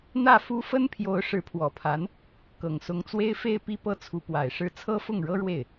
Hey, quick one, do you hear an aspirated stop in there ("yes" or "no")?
yes